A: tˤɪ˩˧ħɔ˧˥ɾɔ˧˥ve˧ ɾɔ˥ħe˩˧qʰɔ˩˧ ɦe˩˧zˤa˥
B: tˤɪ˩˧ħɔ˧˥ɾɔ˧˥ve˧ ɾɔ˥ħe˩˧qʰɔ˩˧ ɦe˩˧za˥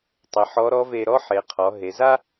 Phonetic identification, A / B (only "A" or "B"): B